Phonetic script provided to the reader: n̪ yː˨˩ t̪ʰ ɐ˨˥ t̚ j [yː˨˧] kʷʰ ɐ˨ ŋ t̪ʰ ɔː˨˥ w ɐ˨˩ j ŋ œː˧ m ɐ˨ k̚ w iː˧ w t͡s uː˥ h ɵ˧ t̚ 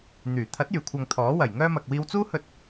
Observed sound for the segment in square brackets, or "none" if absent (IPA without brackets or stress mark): yː˨˩